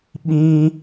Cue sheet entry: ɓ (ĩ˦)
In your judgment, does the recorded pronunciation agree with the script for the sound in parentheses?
yes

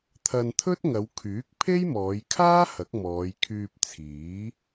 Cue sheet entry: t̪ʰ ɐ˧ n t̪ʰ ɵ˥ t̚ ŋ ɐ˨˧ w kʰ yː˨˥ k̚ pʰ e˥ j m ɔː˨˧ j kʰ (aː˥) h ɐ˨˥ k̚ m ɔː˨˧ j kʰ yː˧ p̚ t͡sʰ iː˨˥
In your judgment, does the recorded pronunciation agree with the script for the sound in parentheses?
yes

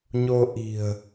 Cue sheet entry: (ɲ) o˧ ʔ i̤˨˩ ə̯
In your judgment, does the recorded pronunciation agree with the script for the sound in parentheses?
yes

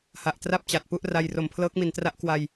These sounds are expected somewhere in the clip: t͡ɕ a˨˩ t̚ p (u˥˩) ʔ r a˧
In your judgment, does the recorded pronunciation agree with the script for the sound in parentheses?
yes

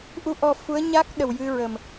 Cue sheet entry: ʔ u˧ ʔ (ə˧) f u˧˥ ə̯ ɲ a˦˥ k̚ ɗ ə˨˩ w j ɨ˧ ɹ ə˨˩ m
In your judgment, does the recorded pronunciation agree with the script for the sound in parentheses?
no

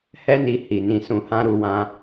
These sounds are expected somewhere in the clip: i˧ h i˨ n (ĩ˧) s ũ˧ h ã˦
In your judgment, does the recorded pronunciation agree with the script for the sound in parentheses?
yes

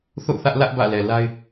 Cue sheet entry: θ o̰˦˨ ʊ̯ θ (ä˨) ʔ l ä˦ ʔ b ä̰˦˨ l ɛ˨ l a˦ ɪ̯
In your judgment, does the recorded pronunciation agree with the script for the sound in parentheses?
no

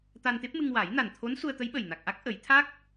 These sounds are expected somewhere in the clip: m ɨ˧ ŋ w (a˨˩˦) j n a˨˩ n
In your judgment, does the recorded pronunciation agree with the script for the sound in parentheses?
yes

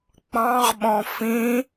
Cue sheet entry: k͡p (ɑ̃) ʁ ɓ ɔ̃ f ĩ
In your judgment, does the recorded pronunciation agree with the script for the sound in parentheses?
yes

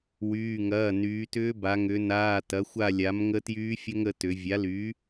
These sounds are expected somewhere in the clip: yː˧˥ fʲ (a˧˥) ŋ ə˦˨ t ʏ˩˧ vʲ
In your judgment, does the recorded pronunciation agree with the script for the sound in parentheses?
no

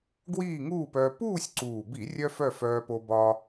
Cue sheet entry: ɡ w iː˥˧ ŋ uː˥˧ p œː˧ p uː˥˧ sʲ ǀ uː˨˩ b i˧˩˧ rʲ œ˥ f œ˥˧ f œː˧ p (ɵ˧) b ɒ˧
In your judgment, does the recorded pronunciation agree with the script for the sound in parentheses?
no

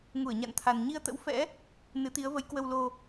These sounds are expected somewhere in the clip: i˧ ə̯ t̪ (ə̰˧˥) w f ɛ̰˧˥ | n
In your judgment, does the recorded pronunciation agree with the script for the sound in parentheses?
yes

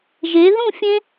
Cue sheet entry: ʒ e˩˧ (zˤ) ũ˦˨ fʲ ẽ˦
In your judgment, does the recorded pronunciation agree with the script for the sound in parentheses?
no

